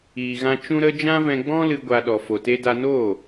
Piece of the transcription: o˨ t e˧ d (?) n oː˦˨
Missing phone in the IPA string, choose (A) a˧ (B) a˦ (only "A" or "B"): A